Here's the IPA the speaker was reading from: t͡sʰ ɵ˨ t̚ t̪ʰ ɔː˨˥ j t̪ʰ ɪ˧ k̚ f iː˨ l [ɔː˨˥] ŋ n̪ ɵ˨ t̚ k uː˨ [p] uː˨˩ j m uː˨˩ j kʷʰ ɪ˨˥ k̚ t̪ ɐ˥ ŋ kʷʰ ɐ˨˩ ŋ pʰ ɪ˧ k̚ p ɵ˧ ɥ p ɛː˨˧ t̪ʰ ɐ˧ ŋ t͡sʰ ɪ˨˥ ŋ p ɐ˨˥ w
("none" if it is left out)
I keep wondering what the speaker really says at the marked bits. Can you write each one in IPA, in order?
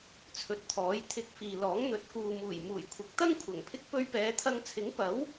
ɔː˨˥, m

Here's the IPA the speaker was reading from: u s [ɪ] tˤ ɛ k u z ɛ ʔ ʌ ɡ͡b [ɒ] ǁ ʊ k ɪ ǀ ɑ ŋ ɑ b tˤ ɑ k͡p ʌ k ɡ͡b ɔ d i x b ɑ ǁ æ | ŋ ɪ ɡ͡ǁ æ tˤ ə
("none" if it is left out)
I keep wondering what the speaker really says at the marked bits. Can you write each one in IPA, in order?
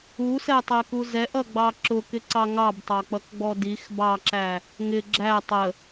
ɛ, ɑ

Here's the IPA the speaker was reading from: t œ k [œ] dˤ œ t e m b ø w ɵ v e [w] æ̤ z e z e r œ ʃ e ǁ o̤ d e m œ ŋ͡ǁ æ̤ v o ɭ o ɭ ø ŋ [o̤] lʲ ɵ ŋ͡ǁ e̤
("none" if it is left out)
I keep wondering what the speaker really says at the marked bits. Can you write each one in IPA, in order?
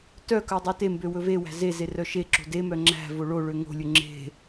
œ, w, o̤

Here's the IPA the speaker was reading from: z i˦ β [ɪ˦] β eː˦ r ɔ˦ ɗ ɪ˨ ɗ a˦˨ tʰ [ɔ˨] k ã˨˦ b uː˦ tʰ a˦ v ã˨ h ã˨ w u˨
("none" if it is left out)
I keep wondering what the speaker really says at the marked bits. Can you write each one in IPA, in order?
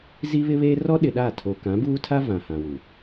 ɪ˦, o˨

